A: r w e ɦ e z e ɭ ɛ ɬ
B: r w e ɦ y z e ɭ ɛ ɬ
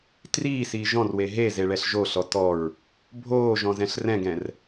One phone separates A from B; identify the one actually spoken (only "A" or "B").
A